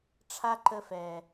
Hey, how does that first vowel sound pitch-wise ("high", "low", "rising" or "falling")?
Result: high